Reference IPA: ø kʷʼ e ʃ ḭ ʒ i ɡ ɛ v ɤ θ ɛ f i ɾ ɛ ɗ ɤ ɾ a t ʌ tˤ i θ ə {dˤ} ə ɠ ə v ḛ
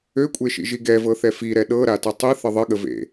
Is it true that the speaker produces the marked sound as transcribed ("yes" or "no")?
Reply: no